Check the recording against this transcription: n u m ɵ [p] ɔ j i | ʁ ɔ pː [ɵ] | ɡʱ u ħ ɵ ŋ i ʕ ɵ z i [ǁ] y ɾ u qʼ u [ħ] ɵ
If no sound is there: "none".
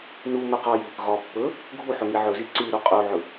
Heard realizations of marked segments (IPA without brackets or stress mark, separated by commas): q, ɵ, ǀ, ʕ